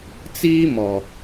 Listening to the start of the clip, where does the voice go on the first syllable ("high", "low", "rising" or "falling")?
high